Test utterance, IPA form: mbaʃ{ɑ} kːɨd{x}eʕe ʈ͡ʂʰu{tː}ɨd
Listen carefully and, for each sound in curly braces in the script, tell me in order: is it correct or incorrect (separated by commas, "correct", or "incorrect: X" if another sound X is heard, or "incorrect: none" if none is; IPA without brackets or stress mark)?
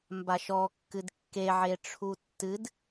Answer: incorrect: ɔ, incorrect: kː, correct